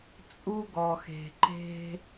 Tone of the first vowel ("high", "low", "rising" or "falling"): high